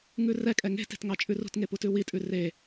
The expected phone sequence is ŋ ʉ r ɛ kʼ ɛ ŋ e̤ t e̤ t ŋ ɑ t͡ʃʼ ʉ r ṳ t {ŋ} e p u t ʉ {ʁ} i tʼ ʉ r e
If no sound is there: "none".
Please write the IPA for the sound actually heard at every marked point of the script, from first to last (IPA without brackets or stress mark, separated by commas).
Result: ŋ, w